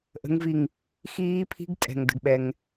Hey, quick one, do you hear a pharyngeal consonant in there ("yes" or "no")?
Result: no